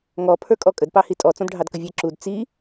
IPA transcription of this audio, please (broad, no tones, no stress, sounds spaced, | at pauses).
ŋ ɔ pʰ ə˞ kʼ ɔ kʼ ə d p ɑ h i tʼ ɔ t͡s ɔ̃ d ɖʱ ɑ d k ə vʲ ɛ ǁ u d t͡s i